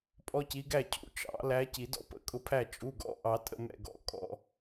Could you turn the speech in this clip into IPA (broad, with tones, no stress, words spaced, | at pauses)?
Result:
pʼɔ˦ci˨˦ɡæ˥˩cʰṵ˩˧˩ t͡ʃɑ̰˨˩˦læ˨˦ ci˨˩˦dɔ̰˥˩ pə̰˧˩kʼʊ˨˦pʰæ˥˩ t͡ʃʼu˩˧˩ɡɔ̰˨˦ ʔɑ˨˩˦tʼə̰˥˩ mɛ̰˧˩ɡɔ̰˨˩˦ kʼɔ̰˩˧˩